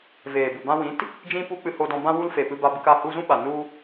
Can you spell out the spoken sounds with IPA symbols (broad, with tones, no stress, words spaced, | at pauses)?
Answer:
veː˨bu˨bã˧wĩ˨˦t | d͡ʒĩ˦ pu˦k͡pɨ˧ho˧dɔ̃˧ bã˦wu˦l fe˨ pɨ˧ba˧bɨ˧ka˦˨ hu˧zũ˦ ɓa˨ nu˧